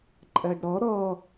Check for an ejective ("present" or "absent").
present